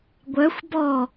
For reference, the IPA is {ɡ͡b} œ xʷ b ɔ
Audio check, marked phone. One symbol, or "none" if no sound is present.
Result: ɡʷ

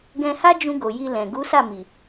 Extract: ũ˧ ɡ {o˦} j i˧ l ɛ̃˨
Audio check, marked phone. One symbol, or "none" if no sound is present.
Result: o˨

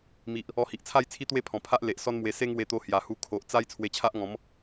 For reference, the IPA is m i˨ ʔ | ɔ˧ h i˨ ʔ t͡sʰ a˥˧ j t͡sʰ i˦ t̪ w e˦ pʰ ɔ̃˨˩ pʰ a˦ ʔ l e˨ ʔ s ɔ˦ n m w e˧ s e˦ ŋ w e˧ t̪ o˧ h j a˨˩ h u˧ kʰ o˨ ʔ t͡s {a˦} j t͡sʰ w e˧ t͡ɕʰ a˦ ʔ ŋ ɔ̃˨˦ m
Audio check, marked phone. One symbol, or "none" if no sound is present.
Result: a˦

